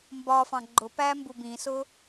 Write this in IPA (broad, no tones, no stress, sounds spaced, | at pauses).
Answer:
m b ɒ f ɑ̃ ɡ͡ǃ ʊ p æ m b u b ĩ s ʊ